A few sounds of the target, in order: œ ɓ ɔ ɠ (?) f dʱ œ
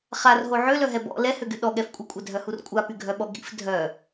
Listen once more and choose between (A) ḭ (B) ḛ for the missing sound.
A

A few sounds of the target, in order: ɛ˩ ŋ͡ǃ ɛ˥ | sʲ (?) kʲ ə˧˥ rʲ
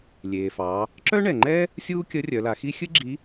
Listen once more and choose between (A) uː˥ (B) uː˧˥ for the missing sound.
A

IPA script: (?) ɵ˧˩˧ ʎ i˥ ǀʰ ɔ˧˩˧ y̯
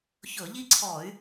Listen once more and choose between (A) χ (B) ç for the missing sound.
B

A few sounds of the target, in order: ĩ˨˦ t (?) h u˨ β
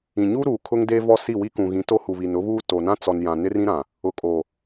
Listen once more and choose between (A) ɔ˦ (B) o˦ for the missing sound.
B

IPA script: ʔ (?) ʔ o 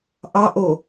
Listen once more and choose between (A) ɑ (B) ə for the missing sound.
A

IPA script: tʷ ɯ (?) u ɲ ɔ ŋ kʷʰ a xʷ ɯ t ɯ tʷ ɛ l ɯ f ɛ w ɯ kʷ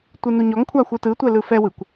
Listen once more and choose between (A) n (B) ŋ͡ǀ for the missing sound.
A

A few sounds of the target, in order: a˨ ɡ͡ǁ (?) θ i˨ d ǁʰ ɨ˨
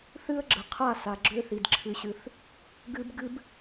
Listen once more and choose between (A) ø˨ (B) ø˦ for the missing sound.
B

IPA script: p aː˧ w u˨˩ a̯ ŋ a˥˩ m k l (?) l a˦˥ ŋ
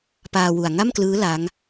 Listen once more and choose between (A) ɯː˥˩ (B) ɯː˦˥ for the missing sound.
B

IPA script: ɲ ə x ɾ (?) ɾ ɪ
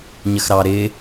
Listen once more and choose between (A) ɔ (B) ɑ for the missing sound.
B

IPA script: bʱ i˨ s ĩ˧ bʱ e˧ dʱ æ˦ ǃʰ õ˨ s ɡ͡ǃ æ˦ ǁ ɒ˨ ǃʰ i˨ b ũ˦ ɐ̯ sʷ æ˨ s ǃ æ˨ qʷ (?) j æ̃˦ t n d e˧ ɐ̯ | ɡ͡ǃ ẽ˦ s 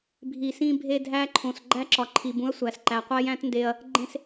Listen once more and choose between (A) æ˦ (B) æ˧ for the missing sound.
A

